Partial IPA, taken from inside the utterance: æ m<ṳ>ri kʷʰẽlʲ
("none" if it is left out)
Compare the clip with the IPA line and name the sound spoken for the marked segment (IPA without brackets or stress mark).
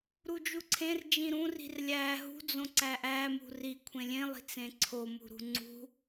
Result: ṳ